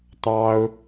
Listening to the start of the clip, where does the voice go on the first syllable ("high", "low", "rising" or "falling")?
high